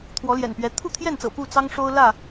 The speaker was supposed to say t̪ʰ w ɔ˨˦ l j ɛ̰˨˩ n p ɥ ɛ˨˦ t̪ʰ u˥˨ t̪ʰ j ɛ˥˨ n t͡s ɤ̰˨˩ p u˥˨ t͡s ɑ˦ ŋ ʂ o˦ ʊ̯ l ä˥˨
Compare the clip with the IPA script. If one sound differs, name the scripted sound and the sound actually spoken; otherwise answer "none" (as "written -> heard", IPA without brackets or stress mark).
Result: none